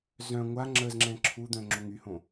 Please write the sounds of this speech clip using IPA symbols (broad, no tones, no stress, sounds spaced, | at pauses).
z œ̃ ŋʷ a ŋ͡ǁ ə z ŋ͡ǁ ɛ̃ ǁʰ u d̪ œ̃ ŋ͡ǁ o ŋ y h õ